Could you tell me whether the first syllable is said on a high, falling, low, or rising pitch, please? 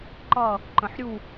falling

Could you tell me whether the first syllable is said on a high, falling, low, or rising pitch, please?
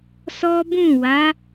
high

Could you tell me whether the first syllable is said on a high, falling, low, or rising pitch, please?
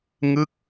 falling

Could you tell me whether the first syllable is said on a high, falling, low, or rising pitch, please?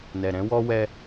low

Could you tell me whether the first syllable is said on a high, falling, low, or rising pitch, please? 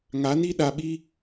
rising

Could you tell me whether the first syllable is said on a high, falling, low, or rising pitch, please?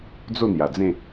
falling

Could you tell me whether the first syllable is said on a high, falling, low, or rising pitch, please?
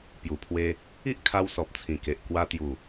low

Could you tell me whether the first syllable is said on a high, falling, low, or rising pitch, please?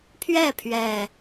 falling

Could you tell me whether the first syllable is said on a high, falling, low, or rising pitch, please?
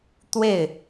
falling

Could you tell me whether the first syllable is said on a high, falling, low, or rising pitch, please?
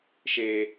low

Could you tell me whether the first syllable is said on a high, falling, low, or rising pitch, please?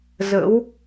rising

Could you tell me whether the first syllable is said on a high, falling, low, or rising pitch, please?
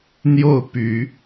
falling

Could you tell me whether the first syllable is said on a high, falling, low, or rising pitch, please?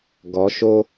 rising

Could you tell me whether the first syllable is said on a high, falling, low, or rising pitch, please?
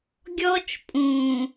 high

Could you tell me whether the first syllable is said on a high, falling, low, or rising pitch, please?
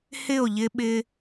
falling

